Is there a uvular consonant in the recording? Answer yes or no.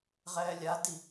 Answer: yes